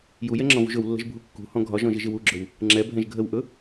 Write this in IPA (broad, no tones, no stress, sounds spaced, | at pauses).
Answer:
j u j ɛ ŋ͡ǁ ɔ̃ v ṳ ʒ ɵ w lː ə̤ ʒ bʱ u kː ṳ h ɔ̃ ɡʱ ɒ ʒ ɔ̃ ʒ ɪ ʒ ɪ w u ɡ͡ǁ ɵ w | ŋ͡ǁ ɛ bʱ ɛ̃ ʒ ɡʱ ə w ʔ ɵ